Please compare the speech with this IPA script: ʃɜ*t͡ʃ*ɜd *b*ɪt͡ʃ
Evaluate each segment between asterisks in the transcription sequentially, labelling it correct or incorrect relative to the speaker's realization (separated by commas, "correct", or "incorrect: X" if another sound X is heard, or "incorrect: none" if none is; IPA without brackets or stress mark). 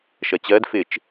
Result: incorrect: t͡ɕ, incorrect: f